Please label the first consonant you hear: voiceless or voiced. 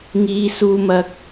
voiced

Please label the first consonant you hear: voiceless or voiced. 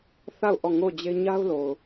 voiceless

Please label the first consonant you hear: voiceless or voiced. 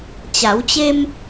voiceless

